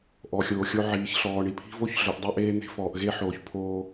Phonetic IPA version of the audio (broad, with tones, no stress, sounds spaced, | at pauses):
ʔ ɔ˨ xʲ oː˨ xʲ o˦ ʕ iː˨˦ ç ɬ ɔː˨ ɳ i˨ pʰ i̤˦ v o˦ ç ɮ œ˨ ʔ dˤ ø˦ ʔ eː˦ n̪ e̤˦ f ɔː˨ ʔ ɣ e˦ ħ oː˨ ç pʰ oː˦